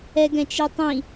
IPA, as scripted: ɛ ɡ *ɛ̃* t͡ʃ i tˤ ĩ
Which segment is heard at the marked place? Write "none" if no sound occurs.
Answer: ɛ̃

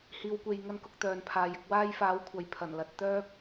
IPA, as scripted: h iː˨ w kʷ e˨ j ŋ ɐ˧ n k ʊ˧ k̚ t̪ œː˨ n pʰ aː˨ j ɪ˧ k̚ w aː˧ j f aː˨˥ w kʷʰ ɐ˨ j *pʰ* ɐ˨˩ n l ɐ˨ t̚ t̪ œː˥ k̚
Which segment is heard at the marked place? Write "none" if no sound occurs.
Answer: pʰ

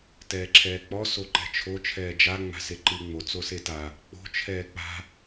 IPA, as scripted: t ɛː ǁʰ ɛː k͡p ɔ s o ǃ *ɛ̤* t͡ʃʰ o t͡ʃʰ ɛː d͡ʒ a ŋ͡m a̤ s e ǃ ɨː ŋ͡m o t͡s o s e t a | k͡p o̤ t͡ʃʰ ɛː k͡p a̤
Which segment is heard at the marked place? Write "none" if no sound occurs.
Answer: ɛ̤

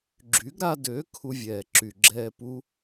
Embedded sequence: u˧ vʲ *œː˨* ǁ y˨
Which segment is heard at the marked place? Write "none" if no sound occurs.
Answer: ɛː˨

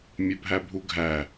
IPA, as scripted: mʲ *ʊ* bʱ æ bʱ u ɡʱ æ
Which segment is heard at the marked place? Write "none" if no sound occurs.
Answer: ʊ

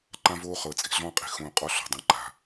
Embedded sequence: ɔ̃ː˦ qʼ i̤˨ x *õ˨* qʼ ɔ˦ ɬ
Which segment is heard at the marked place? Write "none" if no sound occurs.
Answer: õ˨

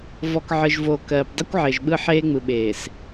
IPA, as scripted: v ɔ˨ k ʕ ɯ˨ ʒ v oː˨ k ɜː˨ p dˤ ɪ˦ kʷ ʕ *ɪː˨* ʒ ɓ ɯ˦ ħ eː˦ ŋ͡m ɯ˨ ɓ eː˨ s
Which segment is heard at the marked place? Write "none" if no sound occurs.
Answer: ɪː˨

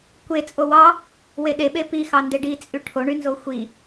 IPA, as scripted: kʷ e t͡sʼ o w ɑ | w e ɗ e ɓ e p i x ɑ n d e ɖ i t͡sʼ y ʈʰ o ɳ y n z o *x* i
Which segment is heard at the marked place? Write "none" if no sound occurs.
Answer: xʷ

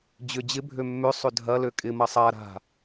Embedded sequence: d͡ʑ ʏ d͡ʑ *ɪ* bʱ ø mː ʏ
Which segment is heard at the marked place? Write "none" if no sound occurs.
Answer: ɪ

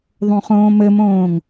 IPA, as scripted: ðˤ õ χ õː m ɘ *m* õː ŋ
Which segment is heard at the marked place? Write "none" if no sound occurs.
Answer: m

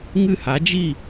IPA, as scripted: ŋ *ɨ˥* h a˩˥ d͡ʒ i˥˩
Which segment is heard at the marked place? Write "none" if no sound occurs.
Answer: ɨ˥˩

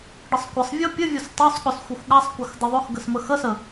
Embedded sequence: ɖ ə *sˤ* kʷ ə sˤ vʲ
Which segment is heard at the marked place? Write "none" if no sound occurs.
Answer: sˤ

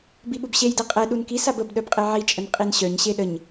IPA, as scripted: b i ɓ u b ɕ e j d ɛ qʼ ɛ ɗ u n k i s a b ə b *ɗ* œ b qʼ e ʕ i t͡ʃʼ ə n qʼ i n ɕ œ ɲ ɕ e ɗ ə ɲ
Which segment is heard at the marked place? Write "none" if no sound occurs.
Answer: ɗ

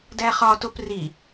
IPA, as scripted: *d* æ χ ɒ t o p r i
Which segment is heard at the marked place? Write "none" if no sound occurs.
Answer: d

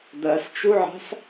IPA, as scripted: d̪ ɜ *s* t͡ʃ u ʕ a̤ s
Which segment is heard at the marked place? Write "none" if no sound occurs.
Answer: s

